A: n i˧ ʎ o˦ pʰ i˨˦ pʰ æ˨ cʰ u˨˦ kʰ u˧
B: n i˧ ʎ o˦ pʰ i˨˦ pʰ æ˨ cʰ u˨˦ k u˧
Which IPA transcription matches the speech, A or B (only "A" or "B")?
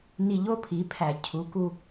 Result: B